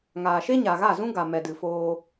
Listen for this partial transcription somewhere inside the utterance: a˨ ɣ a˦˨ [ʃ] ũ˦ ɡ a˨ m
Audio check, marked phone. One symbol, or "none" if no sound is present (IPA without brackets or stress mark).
z